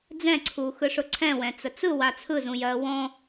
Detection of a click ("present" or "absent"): present